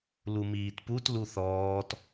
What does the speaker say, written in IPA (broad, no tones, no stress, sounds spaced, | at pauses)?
l u m iː t p u t l u θ ɔː t